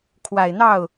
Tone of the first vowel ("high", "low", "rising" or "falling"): low